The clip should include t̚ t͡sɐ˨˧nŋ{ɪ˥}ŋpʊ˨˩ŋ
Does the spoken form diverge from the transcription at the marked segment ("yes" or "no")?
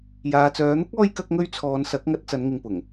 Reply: yes